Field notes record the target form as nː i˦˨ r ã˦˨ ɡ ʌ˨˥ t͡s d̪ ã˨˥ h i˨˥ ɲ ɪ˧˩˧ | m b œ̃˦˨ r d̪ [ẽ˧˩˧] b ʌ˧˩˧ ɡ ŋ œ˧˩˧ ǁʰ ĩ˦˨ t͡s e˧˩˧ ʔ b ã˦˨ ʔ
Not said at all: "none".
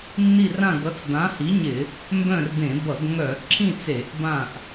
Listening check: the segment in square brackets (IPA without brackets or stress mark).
ẽ˧˩˧